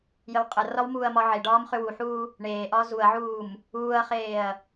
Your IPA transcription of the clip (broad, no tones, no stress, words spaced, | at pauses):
jəwqʼərɒw muːɐ̯mɒʕeɖɒːm χʏwuħuː | ɳeːʔɒː zuɐ̯ʕuːm | uːɐ̯χeːɐ̯